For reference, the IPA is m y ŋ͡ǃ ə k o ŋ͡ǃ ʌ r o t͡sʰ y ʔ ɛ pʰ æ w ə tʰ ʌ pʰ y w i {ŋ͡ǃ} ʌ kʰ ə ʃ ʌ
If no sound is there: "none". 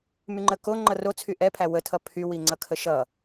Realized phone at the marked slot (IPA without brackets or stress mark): ŋ͡ǀ